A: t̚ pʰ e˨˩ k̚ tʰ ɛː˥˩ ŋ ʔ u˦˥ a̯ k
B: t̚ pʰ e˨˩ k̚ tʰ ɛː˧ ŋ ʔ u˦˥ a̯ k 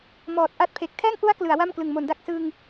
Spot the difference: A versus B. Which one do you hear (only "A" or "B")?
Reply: A